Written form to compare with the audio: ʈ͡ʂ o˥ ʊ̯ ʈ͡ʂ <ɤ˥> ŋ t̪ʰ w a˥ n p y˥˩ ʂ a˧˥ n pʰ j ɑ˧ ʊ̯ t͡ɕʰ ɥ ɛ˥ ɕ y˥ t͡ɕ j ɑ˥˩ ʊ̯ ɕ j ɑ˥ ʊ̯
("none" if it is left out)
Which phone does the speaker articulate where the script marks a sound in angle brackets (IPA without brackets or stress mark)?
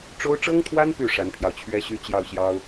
ɤ˥